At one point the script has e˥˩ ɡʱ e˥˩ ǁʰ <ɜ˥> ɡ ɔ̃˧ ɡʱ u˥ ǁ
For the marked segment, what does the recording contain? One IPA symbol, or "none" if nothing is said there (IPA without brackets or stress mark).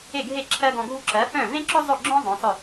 ɜ˥